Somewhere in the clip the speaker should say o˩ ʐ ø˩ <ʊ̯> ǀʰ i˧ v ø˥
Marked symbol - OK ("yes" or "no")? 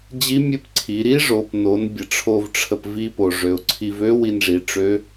yes